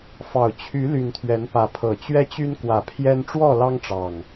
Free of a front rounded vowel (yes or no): no